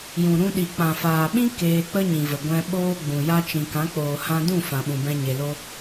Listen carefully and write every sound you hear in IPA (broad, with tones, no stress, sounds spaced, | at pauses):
j ũ˨ ɾ ũ˧ ɗ i˨ k͡p ã˨ f aː˨ ɓ ĩ˦ k eː˧ k͡p ə˦ ɲ ĩ˨ v ə˨ ɡʷ ɛ̃˧ ɓ oː˦ ɡ͡b ũ˨ j a˦ t͡ʃ ĩ˨ k ã˨˦ k͡p oː˨ h ã˧ d ũ˦˨ f ã˨ ɓ ũ˨ b ɛ̃˧ ɲ e˨ l o˦